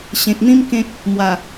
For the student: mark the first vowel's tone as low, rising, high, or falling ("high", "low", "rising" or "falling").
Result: low